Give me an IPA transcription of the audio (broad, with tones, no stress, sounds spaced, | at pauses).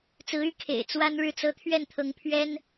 t͡s ɹ̩˧˥ y˧˥ kʰ ḛ˨˩ ɪ̯ t͡s w a˥ n ɻ ɻ̩˥˩ t͡s ɤ˥ t̪ʰ ɥ ɛ˥˩ n t̪ʰ ɤ˧˥ ŋ pʰ ɥ ɛ˥ n